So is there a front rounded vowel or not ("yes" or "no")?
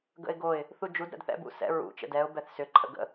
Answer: yes